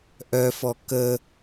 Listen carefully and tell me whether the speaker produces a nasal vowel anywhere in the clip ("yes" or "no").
no